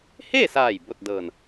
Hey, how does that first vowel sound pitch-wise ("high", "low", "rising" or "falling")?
falling